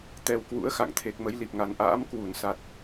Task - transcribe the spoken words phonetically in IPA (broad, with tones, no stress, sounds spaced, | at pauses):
t̪ ɛ˧ w k w ṵ˧˥ ə̯ x a̰˧˨ ŋ t̪ʰ e˨˩ k̚ m ə˨˦ j l i˨˩ p̚ ŋ a˨˩ n ʔ a̰ː˧˥ m k w u˧˩ n s a˨˩ t̚